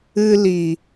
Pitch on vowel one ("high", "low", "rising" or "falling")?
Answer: high